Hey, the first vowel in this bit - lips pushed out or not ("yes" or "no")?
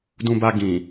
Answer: yes